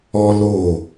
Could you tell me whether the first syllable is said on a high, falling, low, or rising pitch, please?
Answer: high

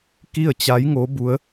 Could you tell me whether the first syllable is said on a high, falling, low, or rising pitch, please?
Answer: falling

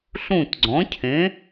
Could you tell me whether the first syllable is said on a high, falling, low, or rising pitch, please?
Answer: falling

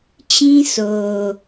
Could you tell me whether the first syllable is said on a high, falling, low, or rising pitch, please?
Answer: high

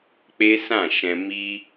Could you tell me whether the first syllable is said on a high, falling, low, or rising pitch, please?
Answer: high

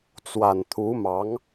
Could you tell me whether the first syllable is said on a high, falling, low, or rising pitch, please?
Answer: low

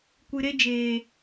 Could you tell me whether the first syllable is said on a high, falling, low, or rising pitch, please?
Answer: low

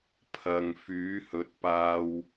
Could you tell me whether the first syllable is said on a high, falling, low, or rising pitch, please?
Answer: low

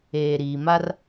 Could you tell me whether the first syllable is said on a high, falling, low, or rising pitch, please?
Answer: low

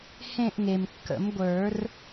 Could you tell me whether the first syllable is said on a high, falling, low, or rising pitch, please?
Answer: falling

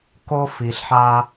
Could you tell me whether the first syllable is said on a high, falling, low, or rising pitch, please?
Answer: high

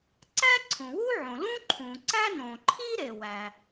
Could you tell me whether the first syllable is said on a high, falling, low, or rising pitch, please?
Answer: high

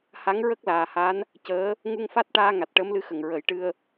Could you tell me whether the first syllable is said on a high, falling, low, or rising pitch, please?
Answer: rising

